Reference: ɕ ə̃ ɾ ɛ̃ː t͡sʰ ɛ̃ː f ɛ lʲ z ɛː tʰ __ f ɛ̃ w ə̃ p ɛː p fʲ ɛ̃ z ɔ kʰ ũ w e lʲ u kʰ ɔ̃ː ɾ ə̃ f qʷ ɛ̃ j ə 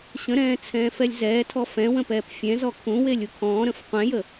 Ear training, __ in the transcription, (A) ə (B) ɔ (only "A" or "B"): B